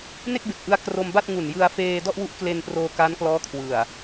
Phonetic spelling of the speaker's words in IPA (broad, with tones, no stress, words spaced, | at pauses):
ne˥˩k̚be˨˩k̚ʔɯ˧a̯ kro˧mba˥˩t̚ ŋu˨˩njɯ˧a̯feː˧ dɔ˥˩ʔwu˦˥ʔkle˧nproː˧ kaː˦˥nklɔː˦˥kʰwɯ˨˩a̯